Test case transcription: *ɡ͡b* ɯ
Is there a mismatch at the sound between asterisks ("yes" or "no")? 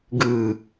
yes